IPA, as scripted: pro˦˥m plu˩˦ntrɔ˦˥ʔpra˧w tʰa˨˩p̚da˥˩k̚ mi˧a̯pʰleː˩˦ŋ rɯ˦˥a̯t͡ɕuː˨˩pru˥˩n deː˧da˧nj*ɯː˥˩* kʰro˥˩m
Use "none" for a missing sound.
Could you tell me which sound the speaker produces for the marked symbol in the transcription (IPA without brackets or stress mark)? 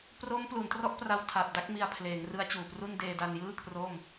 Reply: ɯː˥˩